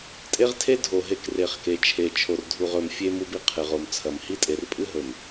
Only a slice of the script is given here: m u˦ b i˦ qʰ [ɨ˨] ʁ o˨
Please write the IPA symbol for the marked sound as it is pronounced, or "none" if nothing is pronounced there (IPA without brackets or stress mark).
ɨ˨